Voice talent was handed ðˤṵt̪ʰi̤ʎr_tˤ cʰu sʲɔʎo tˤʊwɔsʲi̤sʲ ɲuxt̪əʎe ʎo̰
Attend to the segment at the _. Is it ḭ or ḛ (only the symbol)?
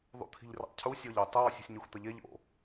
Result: ḭ